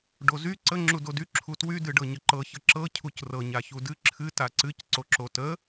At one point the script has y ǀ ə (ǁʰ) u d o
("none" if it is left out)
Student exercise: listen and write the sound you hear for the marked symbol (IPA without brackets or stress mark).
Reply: ŋ͡ǁ